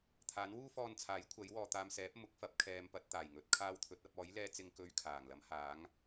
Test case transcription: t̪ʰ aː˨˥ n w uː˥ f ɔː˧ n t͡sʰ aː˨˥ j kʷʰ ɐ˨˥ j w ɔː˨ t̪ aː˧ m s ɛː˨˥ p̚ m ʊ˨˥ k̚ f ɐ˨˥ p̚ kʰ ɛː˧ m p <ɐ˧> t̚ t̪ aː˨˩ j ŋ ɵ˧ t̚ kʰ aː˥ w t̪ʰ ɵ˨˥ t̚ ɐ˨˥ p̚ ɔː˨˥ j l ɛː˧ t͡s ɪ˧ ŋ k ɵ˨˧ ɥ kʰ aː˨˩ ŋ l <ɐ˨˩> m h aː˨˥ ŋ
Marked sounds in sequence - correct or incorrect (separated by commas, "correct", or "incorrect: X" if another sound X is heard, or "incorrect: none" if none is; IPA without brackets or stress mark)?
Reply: correct, incorrect: ɐ˨˥